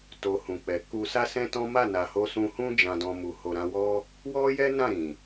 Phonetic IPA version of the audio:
to˨ hũ˨k͡pɛ˨ ku˧ sa˦sɛ̃˦tɔ̃˦ ma˦˨na˨ho˧ sũ˧hũ˦ d͡ʒã˧dɔ̃˧mu˨ ho˨ɾã˧wɔ˦ | wɔ˦jɛ˦ nã˦˨ɾĩ˨

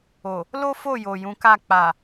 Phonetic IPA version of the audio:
o˨ | lo˦ fo˦˨jo˨ jũ˨˦ka˦˨ k͡pa˨

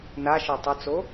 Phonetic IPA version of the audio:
naʃɤ tˤɤt͡so

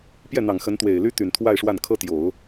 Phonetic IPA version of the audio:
pjɛ˥˩n̪ɑ˨˩ŋ xə˧˥nt̪we˨˩ɪ̯ly˥ t̪y˨˩nt̪ʰwa˥˧ɪ̯ʂwa˥˩n kʰɤ˥t̪jo˨˩˦ʊ̯

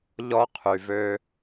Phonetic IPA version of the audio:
ʎɔ˦qʰy˨vø˦

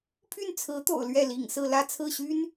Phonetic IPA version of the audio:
pʰy˥˩nt͡sʰɹ̩˧˥t̪o̰˨˩ʊ̯ lɥɛ˥˩lḭ˨˩ŋsɹ̩˥˧ lä˥˧t͡sʰɹ̩˥˩ɕy˥n

